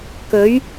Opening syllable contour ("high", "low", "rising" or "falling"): rising